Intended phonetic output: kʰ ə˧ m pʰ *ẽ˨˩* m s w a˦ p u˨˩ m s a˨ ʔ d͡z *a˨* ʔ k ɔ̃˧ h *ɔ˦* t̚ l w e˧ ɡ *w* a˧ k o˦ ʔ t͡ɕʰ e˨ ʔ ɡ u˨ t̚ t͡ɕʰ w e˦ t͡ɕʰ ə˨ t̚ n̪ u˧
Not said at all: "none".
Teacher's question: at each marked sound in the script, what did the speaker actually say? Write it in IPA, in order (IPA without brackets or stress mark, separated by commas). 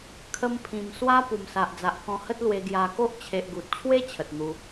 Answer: ĩ˨˩, a˨, ə˦, j